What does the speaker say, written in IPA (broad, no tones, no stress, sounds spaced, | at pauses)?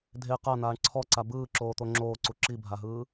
dʱ e q a n̪ aː ɳ ǀʰ ɔ ǀ a b ɯː ǁ oː t̪ o ŋ͡ǁ oː ǀ u ǁ i bʱ a ɦ ɯː